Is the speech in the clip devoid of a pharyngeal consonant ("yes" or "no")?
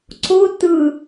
yes